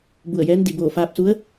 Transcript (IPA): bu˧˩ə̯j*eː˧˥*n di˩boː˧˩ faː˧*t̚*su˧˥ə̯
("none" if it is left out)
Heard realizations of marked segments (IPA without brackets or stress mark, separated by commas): ɛː˧˥, p̚